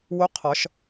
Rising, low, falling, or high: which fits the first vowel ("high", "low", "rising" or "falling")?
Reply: rising